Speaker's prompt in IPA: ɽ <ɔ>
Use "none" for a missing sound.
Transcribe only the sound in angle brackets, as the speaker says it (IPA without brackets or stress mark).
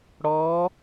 ɔ